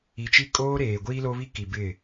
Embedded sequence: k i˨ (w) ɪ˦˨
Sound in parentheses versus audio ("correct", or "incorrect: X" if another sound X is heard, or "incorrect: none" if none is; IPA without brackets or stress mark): incorrect: b